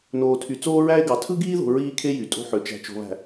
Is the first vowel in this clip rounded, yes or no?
yes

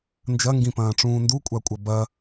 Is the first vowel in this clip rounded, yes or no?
no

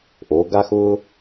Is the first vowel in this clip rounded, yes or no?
yes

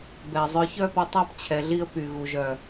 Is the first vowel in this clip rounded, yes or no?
no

